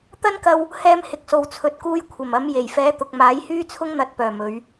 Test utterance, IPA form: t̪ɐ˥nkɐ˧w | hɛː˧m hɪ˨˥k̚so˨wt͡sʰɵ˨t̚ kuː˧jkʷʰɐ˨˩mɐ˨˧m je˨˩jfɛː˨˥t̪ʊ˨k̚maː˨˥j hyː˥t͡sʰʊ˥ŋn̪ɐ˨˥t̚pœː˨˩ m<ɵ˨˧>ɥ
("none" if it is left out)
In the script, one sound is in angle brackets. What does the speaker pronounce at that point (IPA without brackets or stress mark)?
ɵ˨˧